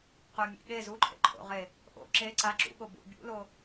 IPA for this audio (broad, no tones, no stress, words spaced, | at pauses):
qɵmʲḛ ɠe zuǃʰḛǃʰo̰ʁe | ʔo̰ ǁe ǀa ǁṵɠo bṵ bʲṵlo